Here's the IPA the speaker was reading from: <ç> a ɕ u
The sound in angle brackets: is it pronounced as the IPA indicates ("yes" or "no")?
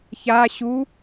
yes